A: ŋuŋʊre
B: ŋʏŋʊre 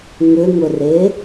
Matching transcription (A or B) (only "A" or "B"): B